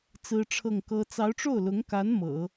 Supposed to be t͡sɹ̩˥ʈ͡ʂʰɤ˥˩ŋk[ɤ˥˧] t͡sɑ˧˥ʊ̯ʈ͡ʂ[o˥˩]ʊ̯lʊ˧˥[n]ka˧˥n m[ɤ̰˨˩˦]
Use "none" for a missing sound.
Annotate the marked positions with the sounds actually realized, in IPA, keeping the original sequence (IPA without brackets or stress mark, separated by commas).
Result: ɤ˥, o˥˩, ŋ, ɤ̰˨˩˦